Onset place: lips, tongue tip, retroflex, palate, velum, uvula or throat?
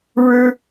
retroflex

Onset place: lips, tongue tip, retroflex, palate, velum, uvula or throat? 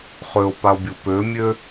uvula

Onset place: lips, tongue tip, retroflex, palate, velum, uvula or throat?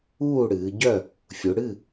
retroflex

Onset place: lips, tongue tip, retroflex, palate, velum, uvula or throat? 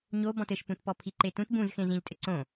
palate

